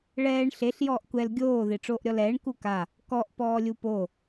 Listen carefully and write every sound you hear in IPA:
ɭɛːɳ ɬeɬ jɔːʔkʷɛl ɡʲoː ðeʈ͡ʂoːʔɾʲɔlɛːɳ kuka | kɔʔ pɔːlʲupo

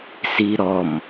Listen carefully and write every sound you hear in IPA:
siɾɔm

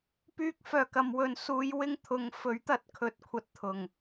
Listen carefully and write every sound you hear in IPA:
pyː˧k̚fœː˨˩kɐ˨mwɵ˨n suː˨˧jwɪ˧ŋ t̪ʰʊ˨˧ŋfɵ˨˥ɥt̪ɐ˧t̚kʰɵ˨t̚ kʷʰɐ˨t̚ t̪ʰʊ˨˩ŋ

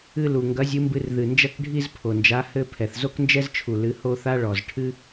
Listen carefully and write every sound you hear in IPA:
ɨ˥˧lu˨˩ ŋɡɐ˨˥zʲɨ˨˥mbɨ˧r ðɨ˨˩nd͡ʒɐ˥˧k ɖʱi˥˧zpʰo˨˩nd͡ʒa˨˥ hɘ˥˧ pʰɛ˨˩θzo˥knd͡ʒɛ˥zt͡ʃʰu˨˩ lɨ˨˥ho˥˧ θa˥ɭɔ˨˩z ʈʰɨ˥

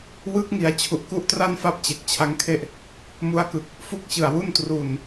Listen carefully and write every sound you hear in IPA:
wɯ˦˥k̚ŋi˩˦a̯ t͡ɕʰu˨˩ʔku˥˩ʔtra˥˩nfa˥˩p̚ t͡ɕe˨˩k̚t͡ɕʰa˦˥ŋkʰe˥˩ʔ | mu˧a̯kɯ˨˩k̚ | fu˥˩k̚t͡ɕɯ˨˩a̯wu˥˩n tru˨˩n

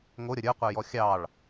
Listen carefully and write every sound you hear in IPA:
ŋoɾʲʌ ɾʲə˞qʷə˞jɔ xʲɑɭ

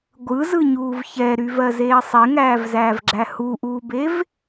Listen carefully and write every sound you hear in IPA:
ɡʷɯzɯɲuːv çɛɾyvɜzeː sˤeŋæːvzæːvɡ͡ǁæ huʔuːbev

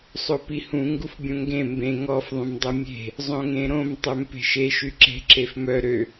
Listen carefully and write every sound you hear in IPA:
sˤopihũ ŋɡufbʲõŋɡẽ mbẽ ŋɔf ðˤũmdˤɛmʲe̤ | zˤõŋẽɾõm tˤømpe̤ʃe ʃyǁe̤ ǁefmœ ɾø

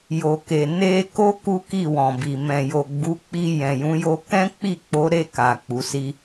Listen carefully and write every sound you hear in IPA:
jo˨ke˨ ne˧ko˦ ku˦ki˦˨wɔ̃˨bi˨ mɛ̃˨jo˨ ɡ͡bu˨˦k͡pi˧ jɛ̃˨jũ˨˦ jo˧kɛ̃˦ k͡pi˦˨k͡po˨˦ɾe˦˨ka˨ k͡pu˨˦si˦

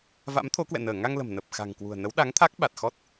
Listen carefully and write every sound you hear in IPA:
va̰˧˥mt̪ʰo˨˦ kwɛ̰˧˨nəː˧˩ ŋa˧ŋlə̤˨˩m nə˨˩p̚xa̤˨˩ŋkwṳ˨˩ə̯nə˨˦w ɗa˨˦ŋt̪ʰa˦˥k̚ɓa˨˩t̚ xɔ˦˥t̚

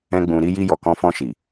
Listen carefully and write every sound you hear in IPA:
ɛ̃˦ɡ͡bũ˧ ɾi˧ji˧ jɔ˨kɔ̃˧fɔ̃˧ʃi˨

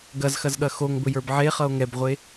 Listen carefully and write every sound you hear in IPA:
ɡɐzxɐzɠɐ xoŋbɵjə˞b ʕeχʌo̯ ŋɛbʁʷe

